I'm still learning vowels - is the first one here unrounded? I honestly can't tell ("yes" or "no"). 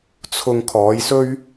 no